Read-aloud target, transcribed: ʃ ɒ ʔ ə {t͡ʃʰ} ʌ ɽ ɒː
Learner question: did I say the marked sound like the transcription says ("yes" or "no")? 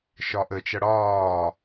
no